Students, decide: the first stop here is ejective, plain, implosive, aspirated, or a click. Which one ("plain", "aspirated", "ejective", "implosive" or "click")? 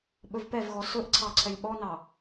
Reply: implosive